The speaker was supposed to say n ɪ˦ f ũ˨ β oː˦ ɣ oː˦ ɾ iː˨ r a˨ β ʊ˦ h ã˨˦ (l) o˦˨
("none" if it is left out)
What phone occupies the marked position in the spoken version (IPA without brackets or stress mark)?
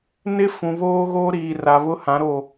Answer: ɾ